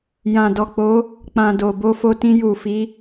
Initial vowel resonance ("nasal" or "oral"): nasal